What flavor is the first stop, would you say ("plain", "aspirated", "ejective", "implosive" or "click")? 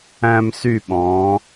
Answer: implosive